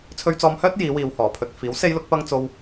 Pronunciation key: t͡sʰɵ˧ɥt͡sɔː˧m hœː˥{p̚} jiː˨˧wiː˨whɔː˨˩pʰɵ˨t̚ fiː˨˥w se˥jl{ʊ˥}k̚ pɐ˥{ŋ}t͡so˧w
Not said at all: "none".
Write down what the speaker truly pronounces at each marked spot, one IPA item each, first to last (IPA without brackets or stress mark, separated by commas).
t̚, ʊ˥, ŋ